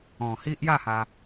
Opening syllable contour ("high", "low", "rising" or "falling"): low